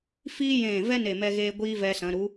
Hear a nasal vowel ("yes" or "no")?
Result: yes